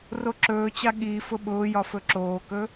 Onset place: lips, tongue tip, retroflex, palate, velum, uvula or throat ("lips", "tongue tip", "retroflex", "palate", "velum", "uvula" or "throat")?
tongue tip